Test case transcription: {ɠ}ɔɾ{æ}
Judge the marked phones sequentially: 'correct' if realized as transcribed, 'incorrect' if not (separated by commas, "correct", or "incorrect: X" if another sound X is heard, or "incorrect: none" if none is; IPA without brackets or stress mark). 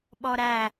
incorrect: ɓ, correct